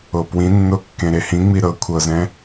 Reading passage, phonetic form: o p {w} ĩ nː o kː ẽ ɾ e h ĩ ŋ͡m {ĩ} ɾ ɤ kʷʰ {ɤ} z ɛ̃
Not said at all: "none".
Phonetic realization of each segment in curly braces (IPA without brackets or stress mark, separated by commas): w, i, ɤ